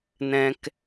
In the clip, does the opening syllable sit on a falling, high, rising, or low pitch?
high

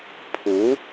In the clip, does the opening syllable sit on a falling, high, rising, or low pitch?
rising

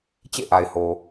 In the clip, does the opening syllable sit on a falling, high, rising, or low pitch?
falling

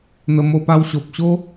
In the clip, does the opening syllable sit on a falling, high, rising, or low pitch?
low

